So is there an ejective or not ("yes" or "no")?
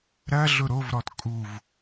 yes